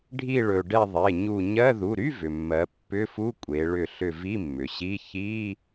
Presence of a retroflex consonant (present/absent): present